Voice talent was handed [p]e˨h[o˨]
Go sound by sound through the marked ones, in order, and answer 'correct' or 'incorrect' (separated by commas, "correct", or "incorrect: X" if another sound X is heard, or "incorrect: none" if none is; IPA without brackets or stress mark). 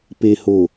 correct, correct